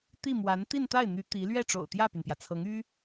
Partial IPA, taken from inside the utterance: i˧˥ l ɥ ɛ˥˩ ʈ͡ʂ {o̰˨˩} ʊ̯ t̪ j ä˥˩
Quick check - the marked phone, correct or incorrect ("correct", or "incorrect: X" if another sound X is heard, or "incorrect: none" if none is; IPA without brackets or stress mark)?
correct